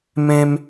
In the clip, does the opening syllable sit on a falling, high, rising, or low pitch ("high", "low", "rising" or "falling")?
high